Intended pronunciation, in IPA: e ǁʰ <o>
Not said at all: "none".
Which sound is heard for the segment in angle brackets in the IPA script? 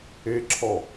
ɔ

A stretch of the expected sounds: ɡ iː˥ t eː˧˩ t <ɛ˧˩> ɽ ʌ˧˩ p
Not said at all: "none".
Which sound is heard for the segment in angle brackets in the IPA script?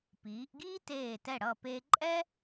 ɛ˧˩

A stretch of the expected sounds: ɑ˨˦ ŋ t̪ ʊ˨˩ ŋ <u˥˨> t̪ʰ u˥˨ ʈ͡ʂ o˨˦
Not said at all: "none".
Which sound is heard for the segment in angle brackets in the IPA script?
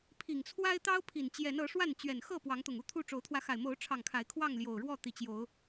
u˥˨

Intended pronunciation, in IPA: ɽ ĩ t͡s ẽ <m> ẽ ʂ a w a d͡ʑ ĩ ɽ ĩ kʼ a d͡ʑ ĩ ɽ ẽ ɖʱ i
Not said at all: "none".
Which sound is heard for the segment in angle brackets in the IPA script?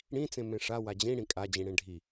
m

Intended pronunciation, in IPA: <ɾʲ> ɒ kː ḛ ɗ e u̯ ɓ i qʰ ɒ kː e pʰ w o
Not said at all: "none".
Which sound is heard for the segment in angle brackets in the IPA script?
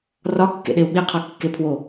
r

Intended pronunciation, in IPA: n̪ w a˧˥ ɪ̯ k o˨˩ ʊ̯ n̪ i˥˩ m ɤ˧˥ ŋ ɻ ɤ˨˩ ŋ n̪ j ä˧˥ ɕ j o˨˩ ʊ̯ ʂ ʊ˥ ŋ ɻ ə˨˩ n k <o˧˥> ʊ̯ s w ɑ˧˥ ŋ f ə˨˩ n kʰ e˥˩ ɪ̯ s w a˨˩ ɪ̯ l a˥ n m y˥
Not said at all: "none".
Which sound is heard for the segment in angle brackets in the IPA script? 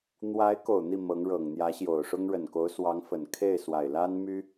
o˧˥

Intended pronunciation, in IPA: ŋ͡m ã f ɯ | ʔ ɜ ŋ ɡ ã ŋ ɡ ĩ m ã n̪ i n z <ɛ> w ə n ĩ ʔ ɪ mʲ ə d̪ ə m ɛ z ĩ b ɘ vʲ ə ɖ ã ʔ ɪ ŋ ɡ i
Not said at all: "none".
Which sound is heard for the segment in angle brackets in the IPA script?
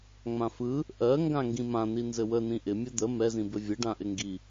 ɘ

